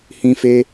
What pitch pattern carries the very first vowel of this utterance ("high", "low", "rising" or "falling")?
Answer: high